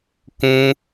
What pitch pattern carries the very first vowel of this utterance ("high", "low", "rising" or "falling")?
high